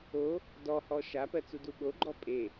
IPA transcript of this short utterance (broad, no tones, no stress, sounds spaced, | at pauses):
o | d ɔ h ɔ ʃ a p ɜ t͡s u d u ɓ o ɡ͡ǃ ɔ pʼ e